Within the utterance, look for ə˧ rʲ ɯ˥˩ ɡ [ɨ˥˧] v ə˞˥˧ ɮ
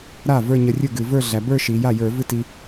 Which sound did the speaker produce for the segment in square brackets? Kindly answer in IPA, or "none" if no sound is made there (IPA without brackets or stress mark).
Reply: ɨ˧˩˧